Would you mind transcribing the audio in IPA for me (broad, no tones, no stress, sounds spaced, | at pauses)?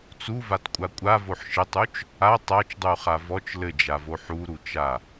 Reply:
t͡s u v a t kʷʼ a kʷʼ a v o ħ ʃ ɘ tˤ u t͡ʃ | a tˤ a t͡ʃ dˤ u χ a v ɔ t͡ʃ l ɘ d͡ʒ a v o ħ u ɾ u t͡ʃ a